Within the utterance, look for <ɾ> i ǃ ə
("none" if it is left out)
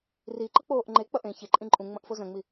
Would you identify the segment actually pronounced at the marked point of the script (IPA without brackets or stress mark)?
r